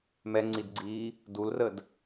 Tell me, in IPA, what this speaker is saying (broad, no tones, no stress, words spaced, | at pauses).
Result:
mɛŋ͡ǀidɡ͡ǀiː | dulrəd